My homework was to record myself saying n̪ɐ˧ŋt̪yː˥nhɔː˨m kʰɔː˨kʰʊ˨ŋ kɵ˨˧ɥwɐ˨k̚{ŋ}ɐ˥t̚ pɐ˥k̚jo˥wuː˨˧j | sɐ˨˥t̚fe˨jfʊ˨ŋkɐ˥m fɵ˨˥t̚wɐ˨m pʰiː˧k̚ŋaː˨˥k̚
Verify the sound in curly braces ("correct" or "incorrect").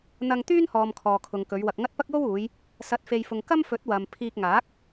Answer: correct